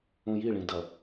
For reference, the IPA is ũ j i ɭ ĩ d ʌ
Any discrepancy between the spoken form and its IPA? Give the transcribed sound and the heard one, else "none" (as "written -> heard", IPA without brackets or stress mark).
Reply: none